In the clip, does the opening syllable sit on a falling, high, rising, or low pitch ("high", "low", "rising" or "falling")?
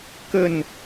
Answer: falling